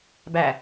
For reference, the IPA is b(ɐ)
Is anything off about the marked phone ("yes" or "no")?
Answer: yes